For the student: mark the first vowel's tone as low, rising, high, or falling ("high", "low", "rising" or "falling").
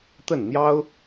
falling